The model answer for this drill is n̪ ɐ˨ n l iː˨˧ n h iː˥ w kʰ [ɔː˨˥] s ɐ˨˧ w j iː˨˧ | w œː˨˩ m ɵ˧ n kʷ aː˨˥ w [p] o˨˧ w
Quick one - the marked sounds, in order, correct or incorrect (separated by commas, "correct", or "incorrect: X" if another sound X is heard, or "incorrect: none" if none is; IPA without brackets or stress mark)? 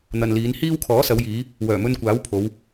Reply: correct, incorrect: pʰ